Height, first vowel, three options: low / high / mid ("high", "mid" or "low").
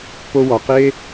mid